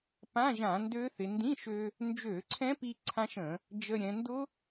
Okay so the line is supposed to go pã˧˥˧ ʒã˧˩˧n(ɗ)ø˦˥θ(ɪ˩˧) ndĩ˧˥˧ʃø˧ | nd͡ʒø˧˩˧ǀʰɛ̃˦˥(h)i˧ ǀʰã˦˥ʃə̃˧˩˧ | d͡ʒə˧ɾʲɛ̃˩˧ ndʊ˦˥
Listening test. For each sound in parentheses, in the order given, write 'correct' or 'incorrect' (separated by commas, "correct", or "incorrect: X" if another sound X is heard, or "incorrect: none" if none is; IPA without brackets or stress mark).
incorrect: d, correct, incorrect: p